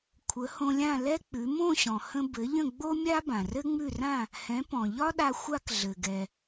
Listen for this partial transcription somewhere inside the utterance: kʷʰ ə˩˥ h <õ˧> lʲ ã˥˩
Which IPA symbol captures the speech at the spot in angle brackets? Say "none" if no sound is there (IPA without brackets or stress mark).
õ˧